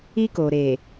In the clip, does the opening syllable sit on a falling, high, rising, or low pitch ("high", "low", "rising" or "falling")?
high